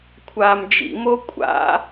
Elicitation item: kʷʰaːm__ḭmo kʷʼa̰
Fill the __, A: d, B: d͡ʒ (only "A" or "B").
B